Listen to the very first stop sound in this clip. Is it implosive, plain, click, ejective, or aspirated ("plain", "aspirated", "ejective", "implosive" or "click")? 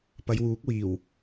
plain